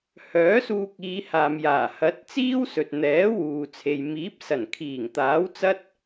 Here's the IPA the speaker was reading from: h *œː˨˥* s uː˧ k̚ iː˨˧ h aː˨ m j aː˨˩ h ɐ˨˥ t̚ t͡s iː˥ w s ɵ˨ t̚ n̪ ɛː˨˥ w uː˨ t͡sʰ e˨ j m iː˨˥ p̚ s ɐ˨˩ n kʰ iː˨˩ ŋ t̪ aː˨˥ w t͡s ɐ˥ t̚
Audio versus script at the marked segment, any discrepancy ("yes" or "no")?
no